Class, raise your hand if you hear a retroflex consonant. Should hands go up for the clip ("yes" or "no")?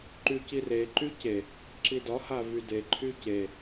no